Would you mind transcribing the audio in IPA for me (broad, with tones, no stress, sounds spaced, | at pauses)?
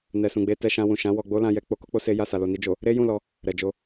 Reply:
n ɛ˨ s ũ˨ ɡ͡b e˧ t ɛ˧ ʃ ã˧ w ũ˨ ʃ ã˨˦ w ɔ˧ ɡ͡b o˦ l ã˧ j ɛ˧ k͡p o˧ k o˦ k͡p o˧ s e˦ j a˦˨ s a˨ l o˨ n i˧ d͡ʒ o˨ | ɾ e˦ j ũ˦˨ l ɔ˧ | ɾ ɛ˨ d͡ʒ o˧